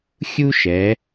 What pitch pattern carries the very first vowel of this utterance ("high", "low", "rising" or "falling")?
high